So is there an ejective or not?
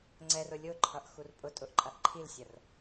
yes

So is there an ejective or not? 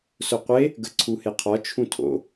no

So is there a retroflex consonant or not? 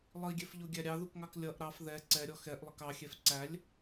no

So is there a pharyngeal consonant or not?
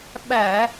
no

